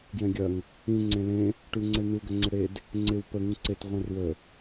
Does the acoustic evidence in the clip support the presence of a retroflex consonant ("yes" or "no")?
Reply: yes